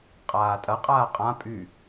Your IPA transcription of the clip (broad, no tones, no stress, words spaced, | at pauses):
qʼaːtʼɐ qʼaːqʼã pʼy